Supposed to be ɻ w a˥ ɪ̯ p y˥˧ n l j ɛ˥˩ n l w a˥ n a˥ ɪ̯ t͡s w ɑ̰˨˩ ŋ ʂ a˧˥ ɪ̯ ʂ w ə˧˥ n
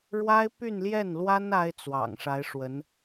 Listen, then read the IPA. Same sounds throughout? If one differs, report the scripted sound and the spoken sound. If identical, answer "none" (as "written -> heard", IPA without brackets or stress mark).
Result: none